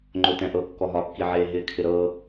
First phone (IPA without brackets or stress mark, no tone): ŋ͡ǃ